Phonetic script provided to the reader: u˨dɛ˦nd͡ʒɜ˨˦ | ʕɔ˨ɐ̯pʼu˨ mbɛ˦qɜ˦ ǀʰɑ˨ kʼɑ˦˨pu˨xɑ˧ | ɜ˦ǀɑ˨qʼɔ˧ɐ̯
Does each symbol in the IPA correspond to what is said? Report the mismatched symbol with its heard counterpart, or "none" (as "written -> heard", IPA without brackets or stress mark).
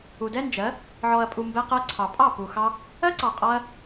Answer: kʼ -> pʼ